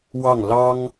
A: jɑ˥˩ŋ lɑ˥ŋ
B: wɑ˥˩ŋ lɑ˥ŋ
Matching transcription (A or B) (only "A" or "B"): B